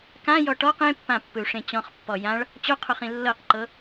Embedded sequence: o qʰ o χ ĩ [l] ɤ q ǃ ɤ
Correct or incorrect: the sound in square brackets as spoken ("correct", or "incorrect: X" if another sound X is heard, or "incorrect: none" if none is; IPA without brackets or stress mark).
incorrect: lː